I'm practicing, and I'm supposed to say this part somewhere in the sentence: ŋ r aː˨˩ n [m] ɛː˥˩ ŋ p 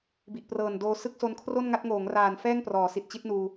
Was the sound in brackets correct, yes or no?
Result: no